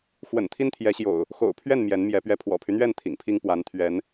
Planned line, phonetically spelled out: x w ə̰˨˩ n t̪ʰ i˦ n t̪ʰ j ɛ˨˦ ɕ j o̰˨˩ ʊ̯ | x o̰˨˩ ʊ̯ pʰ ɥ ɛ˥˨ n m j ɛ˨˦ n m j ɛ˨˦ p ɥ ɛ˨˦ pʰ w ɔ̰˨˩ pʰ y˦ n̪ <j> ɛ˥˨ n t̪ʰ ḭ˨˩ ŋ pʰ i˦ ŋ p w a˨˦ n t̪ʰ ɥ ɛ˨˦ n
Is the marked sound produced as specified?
no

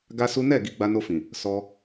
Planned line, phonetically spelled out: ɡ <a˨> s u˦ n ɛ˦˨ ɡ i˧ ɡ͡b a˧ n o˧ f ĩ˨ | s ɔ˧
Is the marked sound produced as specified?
no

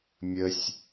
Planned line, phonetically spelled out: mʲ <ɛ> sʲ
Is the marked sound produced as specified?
no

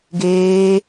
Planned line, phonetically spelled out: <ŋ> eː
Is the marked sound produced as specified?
no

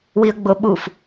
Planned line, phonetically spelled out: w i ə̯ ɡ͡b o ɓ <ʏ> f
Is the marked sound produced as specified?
no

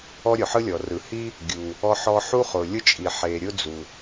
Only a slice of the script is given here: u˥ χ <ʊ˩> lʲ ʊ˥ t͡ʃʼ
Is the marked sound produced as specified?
yes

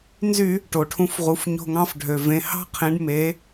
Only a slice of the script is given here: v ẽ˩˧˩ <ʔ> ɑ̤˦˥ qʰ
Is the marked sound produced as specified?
no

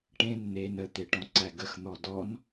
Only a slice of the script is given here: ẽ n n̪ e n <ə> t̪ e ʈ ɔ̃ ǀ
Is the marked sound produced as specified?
yes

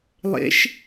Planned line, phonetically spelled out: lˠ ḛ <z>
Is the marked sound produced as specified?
no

